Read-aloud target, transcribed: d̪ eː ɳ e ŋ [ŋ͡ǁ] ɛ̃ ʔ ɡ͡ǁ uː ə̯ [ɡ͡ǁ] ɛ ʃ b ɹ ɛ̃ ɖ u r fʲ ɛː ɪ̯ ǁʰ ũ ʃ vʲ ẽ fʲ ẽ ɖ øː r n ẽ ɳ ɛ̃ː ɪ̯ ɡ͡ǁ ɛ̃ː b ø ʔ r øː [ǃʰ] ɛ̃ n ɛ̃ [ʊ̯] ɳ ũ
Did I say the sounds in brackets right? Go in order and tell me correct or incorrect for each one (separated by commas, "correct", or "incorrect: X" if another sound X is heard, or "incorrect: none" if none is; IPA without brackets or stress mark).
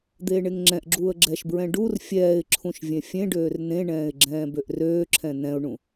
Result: correct, correct, incorrect: ǁʰ, correct